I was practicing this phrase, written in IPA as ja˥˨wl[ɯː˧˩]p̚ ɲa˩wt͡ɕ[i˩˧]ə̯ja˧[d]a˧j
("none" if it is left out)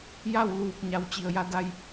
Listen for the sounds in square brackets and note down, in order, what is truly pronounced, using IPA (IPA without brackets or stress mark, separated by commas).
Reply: uː˧˩, i˩, d